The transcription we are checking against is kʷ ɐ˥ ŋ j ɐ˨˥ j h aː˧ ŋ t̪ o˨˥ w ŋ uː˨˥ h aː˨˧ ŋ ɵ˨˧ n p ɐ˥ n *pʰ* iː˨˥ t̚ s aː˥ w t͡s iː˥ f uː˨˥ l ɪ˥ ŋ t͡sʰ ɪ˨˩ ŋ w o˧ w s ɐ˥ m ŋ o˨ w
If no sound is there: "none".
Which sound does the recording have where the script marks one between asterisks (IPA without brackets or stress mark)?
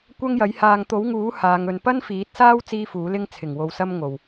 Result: f